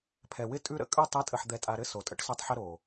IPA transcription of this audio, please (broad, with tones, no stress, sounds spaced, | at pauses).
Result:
pʰ ɛ˨ w ɪ˦ tʼ ʉ˦ ɾ ə̰˦ kʼ ʉ˦ tˤ ɨ˨˦ tʼ ə˨ ħ d̪ ɛ˨ tʼ a˨ ɾ ɘ˦ s o˨ tʼ ə̰˦ ʈ s o˦ tˤ ħ ɪ˦ ɾ o˨